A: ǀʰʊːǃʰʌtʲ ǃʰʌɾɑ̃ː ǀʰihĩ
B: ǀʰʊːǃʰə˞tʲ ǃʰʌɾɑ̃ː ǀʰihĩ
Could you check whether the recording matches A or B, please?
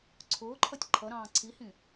A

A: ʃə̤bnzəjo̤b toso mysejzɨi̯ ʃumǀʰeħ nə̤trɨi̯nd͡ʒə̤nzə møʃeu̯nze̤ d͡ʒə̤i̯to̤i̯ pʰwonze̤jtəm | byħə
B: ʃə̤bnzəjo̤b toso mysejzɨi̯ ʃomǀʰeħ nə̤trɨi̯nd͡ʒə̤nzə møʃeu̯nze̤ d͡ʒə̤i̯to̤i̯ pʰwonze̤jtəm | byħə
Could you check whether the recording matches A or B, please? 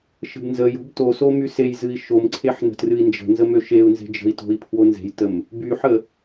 B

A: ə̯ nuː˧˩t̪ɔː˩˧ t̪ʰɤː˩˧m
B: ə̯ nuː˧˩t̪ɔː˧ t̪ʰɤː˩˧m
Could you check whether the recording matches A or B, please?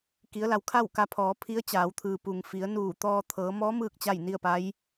B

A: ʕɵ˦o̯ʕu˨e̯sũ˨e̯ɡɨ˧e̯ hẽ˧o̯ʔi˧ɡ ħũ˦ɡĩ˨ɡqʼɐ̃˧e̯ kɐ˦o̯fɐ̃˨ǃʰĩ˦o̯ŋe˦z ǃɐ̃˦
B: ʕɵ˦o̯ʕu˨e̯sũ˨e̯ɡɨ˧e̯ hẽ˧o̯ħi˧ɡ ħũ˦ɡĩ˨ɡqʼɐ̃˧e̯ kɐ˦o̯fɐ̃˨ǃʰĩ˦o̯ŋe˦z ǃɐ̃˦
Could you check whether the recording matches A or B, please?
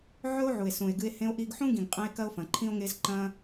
A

